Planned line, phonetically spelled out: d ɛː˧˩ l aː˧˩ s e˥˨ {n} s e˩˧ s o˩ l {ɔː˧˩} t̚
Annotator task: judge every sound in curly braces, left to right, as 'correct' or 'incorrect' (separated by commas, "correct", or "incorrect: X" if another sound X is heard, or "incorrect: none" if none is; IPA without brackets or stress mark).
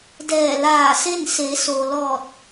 correct, correct